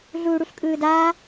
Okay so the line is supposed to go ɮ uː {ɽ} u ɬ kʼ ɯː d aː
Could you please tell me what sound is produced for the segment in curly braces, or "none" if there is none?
ɽ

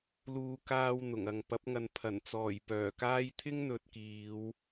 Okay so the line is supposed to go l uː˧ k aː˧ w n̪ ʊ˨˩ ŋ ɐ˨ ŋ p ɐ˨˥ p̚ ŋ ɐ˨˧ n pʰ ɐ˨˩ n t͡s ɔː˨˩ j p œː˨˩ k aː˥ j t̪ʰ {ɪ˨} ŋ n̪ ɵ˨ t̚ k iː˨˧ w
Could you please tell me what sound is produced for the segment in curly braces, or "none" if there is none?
ɪ˥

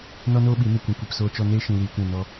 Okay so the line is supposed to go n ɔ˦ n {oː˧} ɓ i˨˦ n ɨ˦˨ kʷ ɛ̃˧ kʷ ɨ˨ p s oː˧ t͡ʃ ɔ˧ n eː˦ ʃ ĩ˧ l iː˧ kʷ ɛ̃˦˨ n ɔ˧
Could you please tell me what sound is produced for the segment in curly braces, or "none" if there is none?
oː˦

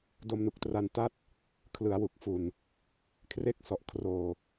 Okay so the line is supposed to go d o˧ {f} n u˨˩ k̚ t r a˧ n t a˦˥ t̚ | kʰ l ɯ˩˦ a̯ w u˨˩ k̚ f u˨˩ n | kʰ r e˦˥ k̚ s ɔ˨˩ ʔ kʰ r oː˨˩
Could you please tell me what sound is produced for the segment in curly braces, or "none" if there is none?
m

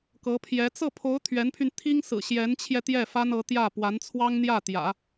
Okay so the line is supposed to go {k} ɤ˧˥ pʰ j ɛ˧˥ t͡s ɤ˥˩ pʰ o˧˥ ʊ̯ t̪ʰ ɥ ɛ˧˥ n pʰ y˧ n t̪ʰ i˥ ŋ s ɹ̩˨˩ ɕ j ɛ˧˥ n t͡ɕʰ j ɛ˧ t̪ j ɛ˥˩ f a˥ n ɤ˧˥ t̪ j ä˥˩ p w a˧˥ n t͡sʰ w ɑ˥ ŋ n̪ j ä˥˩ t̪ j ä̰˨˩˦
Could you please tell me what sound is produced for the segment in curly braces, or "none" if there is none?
k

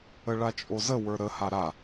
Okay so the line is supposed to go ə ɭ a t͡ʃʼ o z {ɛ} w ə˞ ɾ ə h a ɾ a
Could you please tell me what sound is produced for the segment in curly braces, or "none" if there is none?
ə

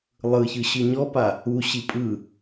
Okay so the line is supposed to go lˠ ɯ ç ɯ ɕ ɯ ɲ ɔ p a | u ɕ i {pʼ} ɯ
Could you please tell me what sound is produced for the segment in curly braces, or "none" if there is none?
pʼ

